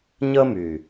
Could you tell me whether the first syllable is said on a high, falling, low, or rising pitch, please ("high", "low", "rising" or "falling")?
high